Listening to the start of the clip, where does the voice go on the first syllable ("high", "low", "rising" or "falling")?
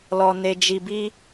low